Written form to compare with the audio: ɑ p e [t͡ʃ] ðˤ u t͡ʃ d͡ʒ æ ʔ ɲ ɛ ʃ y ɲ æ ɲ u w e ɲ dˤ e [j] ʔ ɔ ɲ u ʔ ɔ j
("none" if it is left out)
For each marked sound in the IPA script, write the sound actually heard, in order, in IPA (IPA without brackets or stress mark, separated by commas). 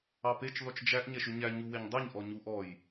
t͡ʃ, ɲ